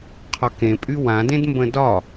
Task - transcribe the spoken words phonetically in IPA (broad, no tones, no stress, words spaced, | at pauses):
qʰɒkẽpʼy wãdẽdmbə̃ dɒ